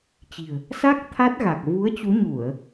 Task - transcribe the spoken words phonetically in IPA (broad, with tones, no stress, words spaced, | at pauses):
t͡ɕi̤˨˩ə̯ | sa˦˥k̚ t̪ʰa˦˥t̚ɣa˨˩k̚ vu˨˦ə̯ t͡ɕu˨˦ɲu˧˩˨ə̯